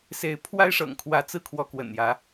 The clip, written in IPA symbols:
s e˨˦ ɪ̯ pʰ w a˦ ɪ̯ ʂ ɤ̰˨˩ ŋ kʰ w ä˨˦ t͡s ɹ̩˥˨ kʰ w ɔ˨˦ k w ə̰˨˩ n j ä˨˦

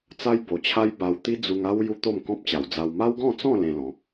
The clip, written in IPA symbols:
t͡s a˦ j b o˨˩ t͡ɕʰ a˦ j b a˧ w t̪ i˦ d͡z u˧ ŋ a˦ w j u˦ t̪ o˥˧ m k ɔ̃˦ p̚ t͡ɕ a˨˩ w d͡z a˧ w m a˦ w ɡ ɔ̃˥˧ t͡s ɔ̃˥˧ l ẽ˧ l ɔ̃˨˦

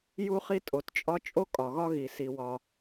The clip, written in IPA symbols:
j u˥ χ i˥ tʼ o˩ t t͡ʃʼ ɒ˥ t͡ʃʼ o˥ kʼ ɒ˩ ɣ ɒ˥ ɣ i˩ s i˩ w ɒ˩

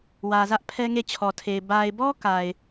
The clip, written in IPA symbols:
w ä˨ z ä˦ ʔ pʰ ɛ˦ ŋ e˦˨ t͡ɕʰ ɔ˨ tʰ e˨ ɪ̯ b a˨ ɪ̯ b ɔ˦ k a˨ ɪ̯

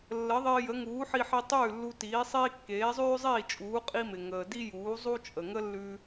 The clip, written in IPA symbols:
lː ə˩˥ ðˤ ɪː˧ j ə˩˥ ŋ uː˩˥ ħ i˧ ħ i˧ tˤ ʉː˥˩ lː u˧ t iː˩˥ sˤ iː˥ kː eː˩˥ zˤ ʉː˥ zˤ iː˥˩ t͡ʃʼ uː˩˥ qʼ i˥ m ɪ˩ ŋ əː˩ d i˥ j uː˩˥ zˤ u˥ t͡ʃʼ ə˩ ŋ ə˥ lː ʉ˧

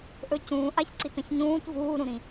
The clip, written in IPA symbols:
ʔ ɵ c ũː ʔ a ç ǀ i t ɐ̃ ç ɲ ũː t v uː ɾ ũ ɾ ĩ

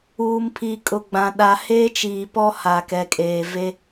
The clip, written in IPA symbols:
uː˨ m pʰ iː˨ kʼ ʊ˨ ɡ͡b ã˨ ɗ a˨ h eː˦ t͡ʃ iː˨ p ɔ˦ h a˨ k ɛ˨ kʼ eː˨ v e˦

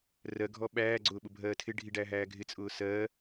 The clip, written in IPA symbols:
r ɜ ɡʱ ɔ ɓ æː ɡ͡ǀ ʊː ɓ ʊ bʱ ɜː tʰ ɪ ɖʱ i ɖ æː ɦ æː ɡʱ ɪ t͡sʼ ʊː s ɜː

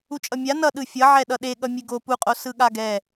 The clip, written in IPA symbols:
u t͡ʃʼ ʌ mʲ a n ʌ ɗ ɯ fʲ ʌ ʕ ɛ ɗ ʌ ɗ e ɠ ʌ mʲ e ɡ o p u qʼ o s ɯ ɠ a ɡ ɛ

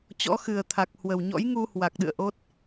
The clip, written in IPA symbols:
t͡ɕ ɔ̰˧˥ x ɨ˨˩ ə̯ t̪ʰ a˨˩ k̚ h w ə˨˩ w ɲ ɔ̰˧˥ j ŋ u˧ h w a˨˩ k̚ ɗ ɨ̰˧˨ ə̯ ʔ o˦˥ t̚

